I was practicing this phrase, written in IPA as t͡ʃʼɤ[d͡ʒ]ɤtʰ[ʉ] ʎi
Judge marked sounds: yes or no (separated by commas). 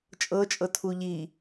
no, no